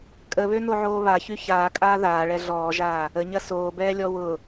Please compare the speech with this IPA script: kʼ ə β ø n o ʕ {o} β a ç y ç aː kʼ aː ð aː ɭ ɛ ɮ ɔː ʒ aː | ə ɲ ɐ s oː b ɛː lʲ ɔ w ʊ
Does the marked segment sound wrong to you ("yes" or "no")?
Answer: yes